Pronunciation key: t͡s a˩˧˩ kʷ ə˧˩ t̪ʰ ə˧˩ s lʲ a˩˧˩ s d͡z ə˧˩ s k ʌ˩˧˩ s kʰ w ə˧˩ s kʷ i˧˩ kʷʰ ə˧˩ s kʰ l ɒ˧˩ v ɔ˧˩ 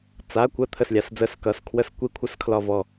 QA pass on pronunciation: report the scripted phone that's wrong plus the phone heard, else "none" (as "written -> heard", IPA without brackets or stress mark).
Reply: none